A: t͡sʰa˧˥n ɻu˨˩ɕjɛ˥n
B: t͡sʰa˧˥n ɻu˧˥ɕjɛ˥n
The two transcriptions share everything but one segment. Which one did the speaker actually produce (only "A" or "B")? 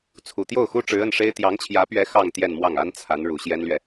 A